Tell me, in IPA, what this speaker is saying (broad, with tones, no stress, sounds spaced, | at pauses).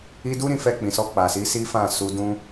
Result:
i˧ d u˦ ɾ ĩ˧ f ɛ˧ k͡p ĩ˨ s ɔ˧ k͡p a˨ s i˨˦ s i˦ f ã˦˨ s u˧ d ũ˧